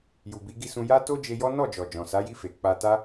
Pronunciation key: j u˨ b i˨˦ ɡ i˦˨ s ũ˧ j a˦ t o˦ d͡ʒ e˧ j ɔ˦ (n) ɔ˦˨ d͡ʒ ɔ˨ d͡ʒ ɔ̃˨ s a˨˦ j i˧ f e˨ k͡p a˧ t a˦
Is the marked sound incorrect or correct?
correct